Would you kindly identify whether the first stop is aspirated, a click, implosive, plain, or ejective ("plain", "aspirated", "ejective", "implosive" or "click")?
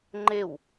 click